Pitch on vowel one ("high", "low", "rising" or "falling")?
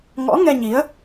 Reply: rising